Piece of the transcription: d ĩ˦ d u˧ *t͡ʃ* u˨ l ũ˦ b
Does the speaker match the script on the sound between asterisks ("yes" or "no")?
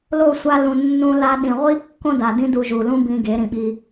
no